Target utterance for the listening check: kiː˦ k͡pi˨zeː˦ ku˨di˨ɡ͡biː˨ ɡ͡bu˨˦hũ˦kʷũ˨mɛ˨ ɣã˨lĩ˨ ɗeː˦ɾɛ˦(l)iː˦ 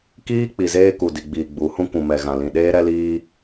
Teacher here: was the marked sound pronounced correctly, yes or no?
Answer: yes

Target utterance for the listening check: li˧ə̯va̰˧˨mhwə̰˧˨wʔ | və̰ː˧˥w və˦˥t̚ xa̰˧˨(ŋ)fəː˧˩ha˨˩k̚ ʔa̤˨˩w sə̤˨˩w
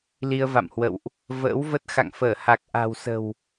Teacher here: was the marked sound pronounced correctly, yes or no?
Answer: yes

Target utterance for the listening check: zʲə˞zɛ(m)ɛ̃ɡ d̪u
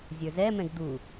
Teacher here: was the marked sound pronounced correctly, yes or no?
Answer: yes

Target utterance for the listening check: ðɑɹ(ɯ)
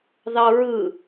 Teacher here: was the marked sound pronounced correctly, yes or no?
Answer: yes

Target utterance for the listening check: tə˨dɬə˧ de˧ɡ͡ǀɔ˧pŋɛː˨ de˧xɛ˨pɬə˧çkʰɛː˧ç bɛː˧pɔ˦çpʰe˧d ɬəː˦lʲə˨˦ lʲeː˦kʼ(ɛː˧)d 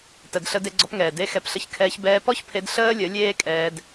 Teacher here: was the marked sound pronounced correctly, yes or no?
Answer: yes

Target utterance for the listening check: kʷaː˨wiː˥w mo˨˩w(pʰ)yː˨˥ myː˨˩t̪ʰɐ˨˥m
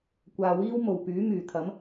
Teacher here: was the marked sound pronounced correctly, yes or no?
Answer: no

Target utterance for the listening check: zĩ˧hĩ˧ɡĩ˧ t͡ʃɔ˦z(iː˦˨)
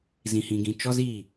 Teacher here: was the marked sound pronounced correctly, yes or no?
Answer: yes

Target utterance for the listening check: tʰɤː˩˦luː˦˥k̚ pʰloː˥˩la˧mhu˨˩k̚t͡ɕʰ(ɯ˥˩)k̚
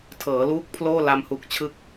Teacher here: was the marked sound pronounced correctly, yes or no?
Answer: no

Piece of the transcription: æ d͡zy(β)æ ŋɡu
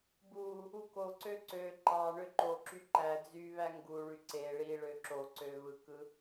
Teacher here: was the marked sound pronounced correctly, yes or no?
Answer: yes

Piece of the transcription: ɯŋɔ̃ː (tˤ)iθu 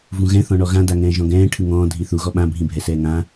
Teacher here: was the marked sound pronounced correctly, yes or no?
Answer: no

